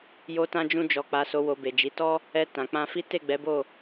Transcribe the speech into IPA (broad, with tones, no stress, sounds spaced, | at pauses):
j o˧ t ã˧ d͡ʒ ũ˧ d͡ʒ ɔ˨ k͡p a˨ s o˨ w o˨ b e˨ d͡ʒ i˨˦ t ɔ˦ | ɛ˧ t ã˨ k͡p ã˧ f i˦ t e˦˨ ɡ͡b ɛ˨˦ b o˦˨